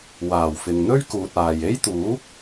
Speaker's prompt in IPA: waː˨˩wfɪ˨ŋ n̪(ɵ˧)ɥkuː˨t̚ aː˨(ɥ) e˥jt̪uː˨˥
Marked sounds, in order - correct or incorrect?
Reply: incorrect, incorrect

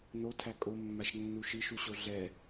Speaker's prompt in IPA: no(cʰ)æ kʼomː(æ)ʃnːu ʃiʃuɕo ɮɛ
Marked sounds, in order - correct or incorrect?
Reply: incorrect, incorrect

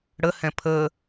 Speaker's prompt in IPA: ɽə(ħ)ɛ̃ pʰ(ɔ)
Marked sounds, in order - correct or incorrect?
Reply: incorrect, incorrect

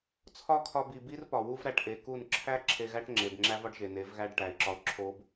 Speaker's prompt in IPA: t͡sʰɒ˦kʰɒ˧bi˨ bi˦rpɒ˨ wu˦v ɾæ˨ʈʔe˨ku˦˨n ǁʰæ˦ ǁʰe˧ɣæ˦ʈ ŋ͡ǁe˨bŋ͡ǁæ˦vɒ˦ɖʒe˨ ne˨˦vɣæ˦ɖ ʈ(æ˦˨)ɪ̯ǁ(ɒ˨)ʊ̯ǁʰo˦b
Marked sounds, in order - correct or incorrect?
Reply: incorrect, incorrect

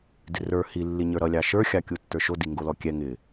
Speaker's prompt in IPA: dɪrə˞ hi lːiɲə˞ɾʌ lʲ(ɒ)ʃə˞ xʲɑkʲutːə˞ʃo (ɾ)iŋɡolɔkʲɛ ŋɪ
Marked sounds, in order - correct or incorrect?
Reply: incorrect, incorrect

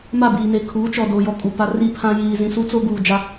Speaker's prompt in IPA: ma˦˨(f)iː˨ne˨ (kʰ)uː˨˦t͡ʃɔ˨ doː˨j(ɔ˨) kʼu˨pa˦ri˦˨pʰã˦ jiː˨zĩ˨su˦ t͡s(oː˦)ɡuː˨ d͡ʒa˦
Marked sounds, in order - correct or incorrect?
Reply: incorrect, correct, correct, incorrect

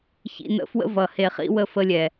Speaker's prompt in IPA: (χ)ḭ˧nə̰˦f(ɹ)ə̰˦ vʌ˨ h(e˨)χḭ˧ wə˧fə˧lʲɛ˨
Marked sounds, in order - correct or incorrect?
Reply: incorrect, incorrect, correct

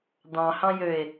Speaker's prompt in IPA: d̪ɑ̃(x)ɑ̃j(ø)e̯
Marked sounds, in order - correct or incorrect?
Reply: incorrect, correct

